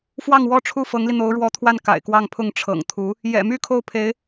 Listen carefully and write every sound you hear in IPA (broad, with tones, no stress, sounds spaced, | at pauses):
f w ɑ˥˩ ŋ w ɔ˥ ʈ͡ʂʰ u˥˩ f ɤ˧˥ ŋ l i˧ n̪ o˧˥ ʊ̯ ɻ w ɔ˧˥ t̪ʰ w a˥˩ n k a̰˨˩ ɪ̯ k w ɑ˥˧ ŋ pʰ ʊ˥˩ ŋ ʈ͡ʂʰ ɤ̰˨˩ ŋ t̪ʰ u˧˥ | j ɛ̰˨˩ m y˥ kʰ o˥˩ ʊ̯ pʰ e˧˥ ɪ̯